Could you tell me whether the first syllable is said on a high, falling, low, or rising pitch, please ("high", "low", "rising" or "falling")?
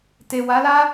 low